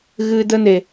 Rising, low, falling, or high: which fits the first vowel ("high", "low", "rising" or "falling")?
low